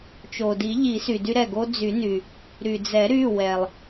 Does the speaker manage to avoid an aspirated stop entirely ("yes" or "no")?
yes